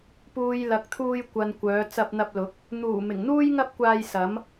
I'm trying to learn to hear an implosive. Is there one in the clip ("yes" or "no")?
no